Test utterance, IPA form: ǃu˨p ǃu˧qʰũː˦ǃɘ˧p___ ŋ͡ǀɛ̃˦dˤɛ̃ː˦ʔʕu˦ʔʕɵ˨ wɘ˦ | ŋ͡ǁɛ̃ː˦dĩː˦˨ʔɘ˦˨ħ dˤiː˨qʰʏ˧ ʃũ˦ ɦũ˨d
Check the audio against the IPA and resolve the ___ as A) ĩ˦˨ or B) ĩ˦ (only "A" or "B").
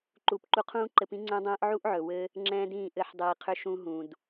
B